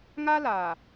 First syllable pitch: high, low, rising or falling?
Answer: high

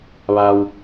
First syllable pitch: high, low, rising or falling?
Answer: low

